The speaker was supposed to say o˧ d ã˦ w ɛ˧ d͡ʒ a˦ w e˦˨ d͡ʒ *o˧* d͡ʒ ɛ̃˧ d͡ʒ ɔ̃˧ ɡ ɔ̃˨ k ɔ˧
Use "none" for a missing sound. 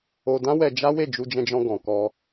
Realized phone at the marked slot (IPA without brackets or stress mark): u˧